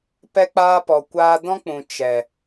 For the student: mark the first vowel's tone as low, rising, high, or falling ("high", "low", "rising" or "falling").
high